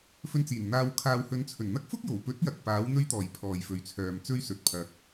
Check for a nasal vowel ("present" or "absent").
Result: absent